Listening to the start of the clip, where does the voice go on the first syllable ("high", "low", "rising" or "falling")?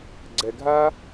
low